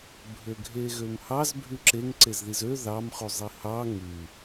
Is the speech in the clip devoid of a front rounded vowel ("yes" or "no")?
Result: no